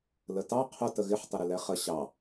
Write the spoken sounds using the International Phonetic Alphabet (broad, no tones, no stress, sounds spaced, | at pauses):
l ə t ɑ qʰ ʊ t ə ɣ ɪ ħ tˤ ɪ ɾ ɪ l ɛ χ ə ɕ ɑ